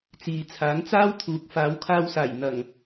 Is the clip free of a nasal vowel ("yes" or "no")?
yes